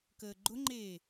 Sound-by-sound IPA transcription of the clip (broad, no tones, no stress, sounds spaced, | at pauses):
k əː ɡ͡ǃ ʊ ŋ͡ǃ eː